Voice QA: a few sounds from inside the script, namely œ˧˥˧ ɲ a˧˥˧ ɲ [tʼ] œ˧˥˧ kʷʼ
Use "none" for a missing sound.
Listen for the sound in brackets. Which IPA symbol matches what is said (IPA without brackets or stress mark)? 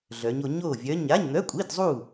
n̪